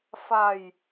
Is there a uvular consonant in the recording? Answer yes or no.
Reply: no